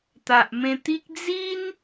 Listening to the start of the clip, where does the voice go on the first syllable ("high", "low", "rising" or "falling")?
low